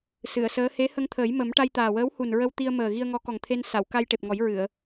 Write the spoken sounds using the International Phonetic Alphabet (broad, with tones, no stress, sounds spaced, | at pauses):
s ɨ˨˩˨ ə̯ s əː˧˥ h e˧˥ h ə˧ ŋ t̪ʰ əː˨˩˦ j m ə˨˩˦ m ʈ a˧ j t̪ aː˨˩ w əː˧˥ w h u˨˩ n ɹ ə˧ w t̪ i˧ ə̯ m əː˨˩ ɣ i˧ ə̯ ŋ ɔ˧˥ k ɔ˨˩ ŋ t̪ʰ e˧ n s a˨˩˨ w k a˧ j ʈ e˨˩ p̚ ŋ ɔ˨˩˦ j ɹ ɨ˨˩˨ ə̯